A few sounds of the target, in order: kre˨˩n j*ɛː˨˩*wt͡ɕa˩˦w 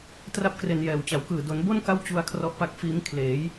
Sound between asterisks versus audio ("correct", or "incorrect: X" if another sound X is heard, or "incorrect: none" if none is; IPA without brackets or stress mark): correct